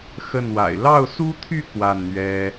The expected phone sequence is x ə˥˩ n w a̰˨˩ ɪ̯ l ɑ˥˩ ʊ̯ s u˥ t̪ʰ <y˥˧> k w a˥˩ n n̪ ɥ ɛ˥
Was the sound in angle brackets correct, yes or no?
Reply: yes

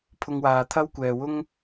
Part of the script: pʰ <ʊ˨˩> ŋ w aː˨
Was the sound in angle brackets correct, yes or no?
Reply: no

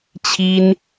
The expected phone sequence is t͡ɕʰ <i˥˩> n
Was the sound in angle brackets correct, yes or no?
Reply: no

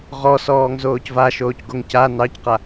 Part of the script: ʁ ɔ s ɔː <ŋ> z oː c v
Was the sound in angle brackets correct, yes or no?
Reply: yes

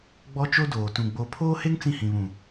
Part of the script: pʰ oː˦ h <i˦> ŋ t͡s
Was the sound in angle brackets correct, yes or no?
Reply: no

